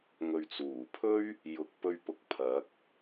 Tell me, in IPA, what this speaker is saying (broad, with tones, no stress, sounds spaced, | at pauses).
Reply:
ŋ ɵ˨ ɥ t͡s uː˨˩ pʰ ɵ˥ ɥ | j ʊ˨˥ k̚ p ɵ˧ ɥ p ʊ˨ k̚ pʰ ɐ˨˥ k̚